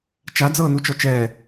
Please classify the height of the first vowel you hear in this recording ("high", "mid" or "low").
low